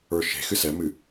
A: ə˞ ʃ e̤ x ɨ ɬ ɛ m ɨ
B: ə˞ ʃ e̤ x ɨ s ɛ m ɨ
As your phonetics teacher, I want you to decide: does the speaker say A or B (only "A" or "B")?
B